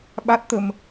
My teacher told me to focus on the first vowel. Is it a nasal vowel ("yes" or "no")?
no